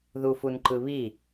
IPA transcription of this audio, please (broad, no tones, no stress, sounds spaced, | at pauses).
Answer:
ð u f u n ǃ ɯ β i